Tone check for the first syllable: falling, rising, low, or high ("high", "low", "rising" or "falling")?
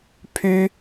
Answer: high